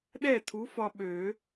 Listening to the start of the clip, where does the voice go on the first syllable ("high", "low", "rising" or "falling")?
falling